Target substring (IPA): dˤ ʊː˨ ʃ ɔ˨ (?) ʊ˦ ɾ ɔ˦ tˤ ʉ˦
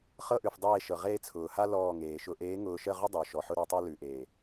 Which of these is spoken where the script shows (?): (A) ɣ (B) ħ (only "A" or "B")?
B